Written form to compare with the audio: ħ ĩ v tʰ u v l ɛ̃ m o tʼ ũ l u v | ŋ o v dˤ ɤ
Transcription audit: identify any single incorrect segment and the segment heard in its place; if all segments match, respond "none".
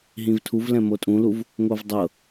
ħ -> ɦ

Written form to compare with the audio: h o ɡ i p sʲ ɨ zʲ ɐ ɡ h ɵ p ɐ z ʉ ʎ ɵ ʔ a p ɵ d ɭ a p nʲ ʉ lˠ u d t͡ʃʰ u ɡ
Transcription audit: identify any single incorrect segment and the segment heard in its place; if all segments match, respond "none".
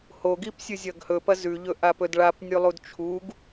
none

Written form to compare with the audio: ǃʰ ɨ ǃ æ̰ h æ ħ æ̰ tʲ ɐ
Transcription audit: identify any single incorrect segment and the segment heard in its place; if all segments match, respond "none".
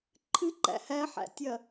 none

